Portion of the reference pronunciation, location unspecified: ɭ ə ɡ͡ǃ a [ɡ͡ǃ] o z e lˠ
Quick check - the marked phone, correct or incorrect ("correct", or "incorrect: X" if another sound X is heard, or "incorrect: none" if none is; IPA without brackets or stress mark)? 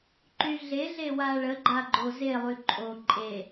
correct